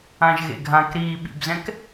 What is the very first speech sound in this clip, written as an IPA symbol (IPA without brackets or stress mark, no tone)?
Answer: ã